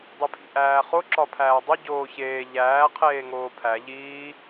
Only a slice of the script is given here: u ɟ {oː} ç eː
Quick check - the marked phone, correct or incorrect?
correct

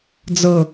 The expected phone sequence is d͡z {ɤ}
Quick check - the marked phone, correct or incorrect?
correct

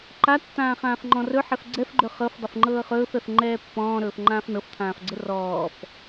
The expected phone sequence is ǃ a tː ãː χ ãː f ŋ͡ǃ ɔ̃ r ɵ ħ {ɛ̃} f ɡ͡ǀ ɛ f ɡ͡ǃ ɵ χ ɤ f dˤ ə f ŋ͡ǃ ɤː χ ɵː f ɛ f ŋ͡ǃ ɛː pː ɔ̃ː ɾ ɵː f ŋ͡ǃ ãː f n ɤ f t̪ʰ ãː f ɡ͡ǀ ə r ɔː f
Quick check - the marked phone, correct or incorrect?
incorrect: ɛ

